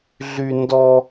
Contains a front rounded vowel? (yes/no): yes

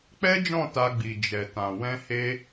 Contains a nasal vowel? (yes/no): yes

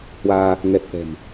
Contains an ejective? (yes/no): no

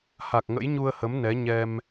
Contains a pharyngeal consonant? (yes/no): no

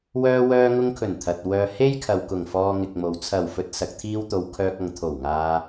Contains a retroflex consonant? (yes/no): no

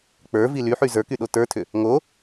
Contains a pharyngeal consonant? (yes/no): yes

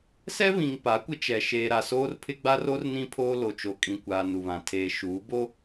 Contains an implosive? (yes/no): no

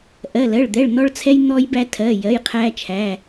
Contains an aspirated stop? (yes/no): yes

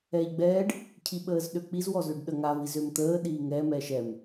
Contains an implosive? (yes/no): yes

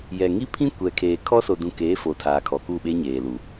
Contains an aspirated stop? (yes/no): yes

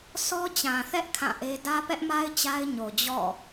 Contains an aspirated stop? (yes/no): yes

